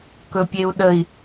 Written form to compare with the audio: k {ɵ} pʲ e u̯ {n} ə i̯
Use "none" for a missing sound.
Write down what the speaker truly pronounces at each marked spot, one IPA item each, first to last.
ɵ, ɗ

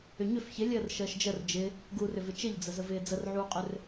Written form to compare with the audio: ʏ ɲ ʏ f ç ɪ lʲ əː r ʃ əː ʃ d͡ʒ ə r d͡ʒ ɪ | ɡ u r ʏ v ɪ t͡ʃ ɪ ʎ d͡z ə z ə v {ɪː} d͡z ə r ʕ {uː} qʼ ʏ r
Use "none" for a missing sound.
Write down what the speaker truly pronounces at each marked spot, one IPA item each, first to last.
ɪː, uː

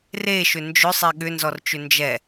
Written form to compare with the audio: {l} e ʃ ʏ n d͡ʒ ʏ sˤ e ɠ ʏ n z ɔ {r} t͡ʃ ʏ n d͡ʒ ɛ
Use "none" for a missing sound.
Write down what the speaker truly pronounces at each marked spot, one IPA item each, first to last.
r, r

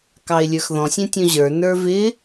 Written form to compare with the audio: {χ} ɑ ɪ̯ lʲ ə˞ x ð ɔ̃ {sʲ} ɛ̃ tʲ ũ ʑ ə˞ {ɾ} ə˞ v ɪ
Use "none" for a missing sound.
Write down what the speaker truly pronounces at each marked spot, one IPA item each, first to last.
k, sʲ, n

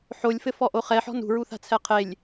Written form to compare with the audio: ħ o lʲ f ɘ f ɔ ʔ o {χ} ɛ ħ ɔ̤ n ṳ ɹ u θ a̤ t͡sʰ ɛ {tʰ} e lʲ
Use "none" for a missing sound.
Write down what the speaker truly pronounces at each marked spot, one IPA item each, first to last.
χ, qʰ

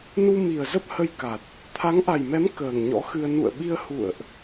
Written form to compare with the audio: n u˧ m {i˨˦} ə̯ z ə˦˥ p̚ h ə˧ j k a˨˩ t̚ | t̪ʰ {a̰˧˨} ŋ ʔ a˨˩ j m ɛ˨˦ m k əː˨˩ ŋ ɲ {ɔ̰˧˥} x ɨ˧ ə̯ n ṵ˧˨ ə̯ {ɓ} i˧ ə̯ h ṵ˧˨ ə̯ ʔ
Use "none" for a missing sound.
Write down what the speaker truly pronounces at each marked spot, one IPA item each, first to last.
i˨˩, a˨˦, ɔ̰˧˥, ɓ

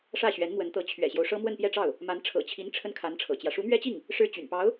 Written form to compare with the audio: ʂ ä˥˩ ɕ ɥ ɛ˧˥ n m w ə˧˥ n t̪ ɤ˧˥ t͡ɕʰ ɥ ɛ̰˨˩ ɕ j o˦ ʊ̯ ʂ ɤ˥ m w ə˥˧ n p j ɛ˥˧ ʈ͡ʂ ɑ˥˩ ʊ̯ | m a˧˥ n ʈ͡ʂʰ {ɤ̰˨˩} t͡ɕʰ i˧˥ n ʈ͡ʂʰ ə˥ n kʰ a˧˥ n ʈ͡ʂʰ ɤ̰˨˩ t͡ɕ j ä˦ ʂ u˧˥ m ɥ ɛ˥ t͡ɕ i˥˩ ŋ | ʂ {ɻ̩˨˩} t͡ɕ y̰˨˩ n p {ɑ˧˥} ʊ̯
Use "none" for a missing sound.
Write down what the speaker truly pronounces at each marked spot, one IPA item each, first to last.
ɤ̰˨˩, ɻ̩˥˩, ɑ˧˥

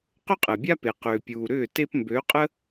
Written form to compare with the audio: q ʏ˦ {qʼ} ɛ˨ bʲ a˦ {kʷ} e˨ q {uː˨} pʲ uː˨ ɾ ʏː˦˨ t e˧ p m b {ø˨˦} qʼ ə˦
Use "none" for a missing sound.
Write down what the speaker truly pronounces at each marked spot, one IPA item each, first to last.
qʼ, p, ʏː˨, ø˨˦

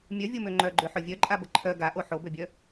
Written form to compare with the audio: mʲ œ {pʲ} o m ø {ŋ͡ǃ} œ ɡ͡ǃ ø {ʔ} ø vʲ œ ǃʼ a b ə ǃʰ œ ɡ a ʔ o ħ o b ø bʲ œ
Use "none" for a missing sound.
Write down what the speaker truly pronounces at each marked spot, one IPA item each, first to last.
vʲ, ŋ͡ǃ, ħ

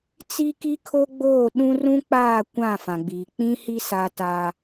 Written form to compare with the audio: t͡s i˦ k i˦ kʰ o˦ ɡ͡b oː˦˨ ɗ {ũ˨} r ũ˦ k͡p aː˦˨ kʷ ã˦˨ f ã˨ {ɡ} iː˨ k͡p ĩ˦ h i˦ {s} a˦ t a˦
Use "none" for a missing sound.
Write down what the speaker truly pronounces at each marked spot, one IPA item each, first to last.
ũ˦, ɡ͡b, s

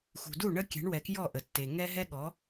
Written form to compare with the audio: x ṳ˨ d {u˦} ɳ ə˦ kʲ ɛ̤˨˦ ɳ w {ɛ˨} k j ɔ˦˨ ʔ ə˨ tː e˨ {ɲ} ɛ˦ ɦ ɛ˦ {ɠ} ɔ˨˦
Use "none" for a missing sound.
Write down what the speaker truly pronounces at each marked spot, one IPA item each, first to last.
u˦˨, ɛ˨, ŋ, ɠ

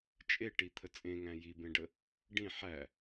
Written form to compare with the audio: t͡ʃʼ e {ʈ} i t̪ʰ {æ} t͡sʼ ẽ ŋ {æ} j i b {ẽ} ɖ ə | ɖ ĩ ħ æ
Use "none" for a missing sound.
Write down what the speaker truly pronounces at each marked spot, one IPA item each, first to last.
ʈ, ə, æ̃, ẽ

